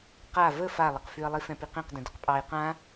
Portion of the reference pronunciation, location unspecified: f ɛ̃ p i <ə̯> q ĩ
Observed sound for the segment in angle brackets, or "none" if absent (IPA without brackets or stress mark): none